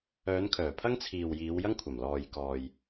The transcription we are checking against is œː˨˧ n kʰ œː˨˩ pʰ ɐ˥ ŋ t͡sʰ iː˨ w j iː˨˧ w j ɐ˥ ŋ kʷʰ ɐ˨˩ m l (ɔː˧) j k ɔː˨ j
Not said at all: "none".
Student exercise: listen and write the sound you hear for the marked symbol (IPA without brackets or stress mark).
ɔː˨